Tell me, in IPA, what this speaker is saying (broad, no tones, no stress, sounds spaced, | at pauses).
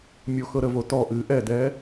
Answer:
mʲ o x ɤ ɾ ə v o t ɔ ʔ ɨː ʔ ɛ d ɛː